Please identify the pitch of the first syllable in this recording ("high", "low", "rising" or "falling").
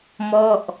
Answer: falling